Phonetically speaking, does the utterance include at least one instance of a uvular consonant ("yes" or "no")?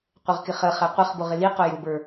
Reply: yes